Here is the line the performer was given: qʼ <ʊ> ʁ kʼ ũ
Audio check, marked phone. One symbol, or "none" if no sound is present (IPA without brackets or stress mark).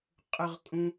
ʊ